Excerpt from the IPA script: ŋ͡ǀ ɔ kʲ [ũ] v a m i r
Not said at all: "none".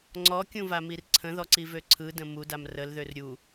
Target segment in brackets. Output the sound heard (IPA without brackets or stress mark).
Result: ũ